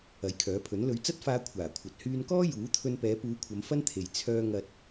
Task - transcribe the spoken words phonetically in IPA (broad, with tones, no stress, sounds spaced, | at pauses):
ɐ˨˥ j kʰ œː˨˥ pʰ ɵ˨˥ n l ɵ˨˧ ɥ t͡s ɐ˥ t̚ f aː˧ kʷʰ aː˨˩ kʷʰ ɐ˨ t̚ h yː˧ n k ɔː˥ j uː˨˥ t̪ʰ ɵ˧ n p ɛː˨˧ p uː˨˧ kʷʰ ɐ˨˧ m f ɐ˥ n t̪ʰ e˨ j t͡sʰ œː˥ ŋ ɐ˧ t̚